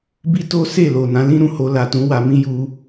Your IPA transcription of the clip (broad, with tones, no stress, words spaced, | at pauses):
bi˦to˦ se˦˨lo˨nã˨˦ lĩ˦ɾũ˦˨ho˧ la˨tũ˨˦ wa˧mĩ˦ ju˧